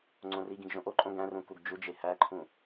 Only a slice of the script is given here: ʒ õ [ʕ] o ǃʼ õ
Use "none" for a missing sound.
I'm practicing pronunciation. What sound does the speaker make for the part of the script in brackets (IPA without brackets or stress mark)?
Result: ʔ